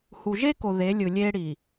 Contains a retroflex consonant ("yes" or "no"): yes